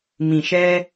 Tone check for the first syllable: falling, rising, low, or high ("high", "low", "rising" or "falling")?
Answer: low